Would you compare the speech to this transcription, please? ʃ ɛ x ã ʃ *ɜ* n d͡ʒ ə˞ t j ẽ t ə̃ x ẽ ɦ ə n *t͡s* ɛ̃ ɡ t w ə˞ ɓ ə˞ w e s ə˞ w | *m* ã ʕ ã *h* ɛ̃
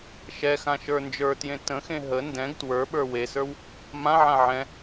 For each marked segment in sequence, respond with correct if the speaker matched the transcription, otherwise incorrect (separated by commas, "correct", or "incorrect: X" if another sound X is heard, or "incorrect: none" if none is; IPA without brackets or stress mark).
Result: incorrect: ə˞, incorrect: d, correct, incorrect: ʕ